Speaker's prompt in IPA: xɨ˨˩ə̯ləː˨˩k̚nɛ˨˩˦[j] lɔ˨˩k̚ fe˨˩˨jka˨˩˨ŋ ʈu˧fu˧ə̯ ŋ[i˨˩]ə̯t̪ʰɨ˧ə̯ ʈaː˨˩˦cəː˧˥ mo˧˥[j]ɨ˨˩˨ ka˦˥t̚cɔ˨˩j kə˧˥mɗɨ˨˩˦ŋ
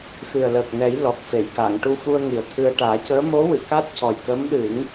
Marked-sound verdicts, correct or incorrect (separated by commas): correct, correct, incorrect